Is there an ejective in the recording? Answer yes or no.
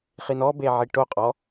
yes